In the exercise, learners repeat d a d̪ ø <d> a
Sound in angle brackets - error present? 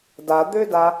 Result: no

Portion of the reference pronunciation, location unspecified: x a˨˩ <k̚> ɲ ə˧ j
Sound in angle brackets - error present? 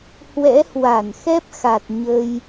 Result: yes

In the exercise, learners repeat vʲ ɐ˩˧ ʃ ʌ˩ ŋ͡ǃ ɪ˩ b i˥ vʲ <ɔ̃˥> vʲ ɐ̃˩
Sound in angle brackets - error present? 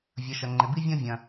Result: no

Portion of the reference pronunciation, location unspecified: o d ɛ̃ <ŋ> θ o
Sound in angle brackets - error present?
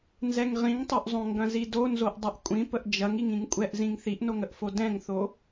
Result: no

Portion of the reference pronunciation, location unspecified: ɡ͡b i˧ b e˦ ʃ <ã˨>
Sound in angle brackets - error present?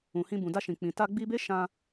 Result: yes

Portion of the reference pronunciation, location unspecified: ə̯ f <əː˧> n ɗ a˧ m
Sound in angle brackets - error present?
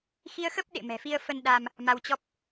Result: yes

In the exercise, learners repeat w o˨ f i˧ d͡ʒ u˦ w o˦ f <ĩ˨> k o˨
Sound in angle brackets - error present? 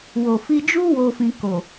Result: yes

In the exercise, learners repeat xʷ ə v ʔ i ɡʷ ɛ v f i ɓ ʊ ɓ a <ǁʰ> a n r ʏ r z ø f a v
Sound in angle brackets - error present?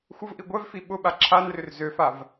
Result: no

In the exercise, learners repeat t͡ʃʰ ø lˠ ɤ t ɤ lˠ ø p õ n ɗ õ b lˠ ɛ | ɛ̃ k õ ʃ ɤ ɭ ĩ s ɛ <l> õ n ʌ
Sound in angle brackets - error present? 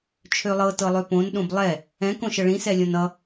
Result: yes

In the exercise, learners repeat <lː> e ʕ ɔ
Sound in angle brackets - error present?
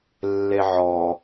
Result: no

